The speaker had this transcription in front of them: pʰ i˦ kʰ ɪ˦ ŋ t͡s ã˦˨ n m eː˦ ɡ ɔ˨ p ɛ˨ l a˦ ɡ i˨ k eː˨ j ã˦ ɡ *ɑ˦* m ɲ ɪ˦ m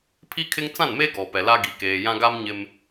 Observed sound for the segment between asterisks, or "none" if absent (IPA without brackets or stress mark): a˦